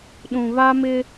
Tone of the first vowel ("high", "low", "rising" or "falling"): low